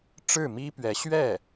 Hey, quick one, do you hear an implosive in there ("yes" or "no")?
no